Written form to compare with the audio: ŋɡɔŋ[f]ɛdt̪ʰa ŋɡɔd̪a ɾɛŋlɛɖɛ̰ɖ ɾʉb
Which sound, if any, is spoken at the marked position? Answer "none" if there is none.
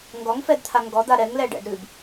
f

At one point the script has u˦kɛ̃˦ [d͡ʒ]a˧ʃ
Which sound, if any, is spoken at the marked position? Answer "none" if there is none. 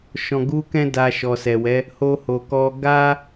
d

